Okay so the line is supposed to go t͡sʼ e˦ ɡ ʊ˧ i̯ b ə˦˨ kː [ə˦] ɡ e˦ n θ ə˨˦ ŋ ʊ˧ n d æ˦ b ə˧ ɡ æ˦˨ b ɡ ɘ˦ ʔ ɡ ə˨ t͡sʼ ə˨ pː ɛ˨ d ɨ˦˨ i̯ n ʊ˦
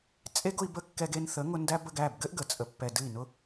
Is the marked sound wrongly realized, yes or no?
yes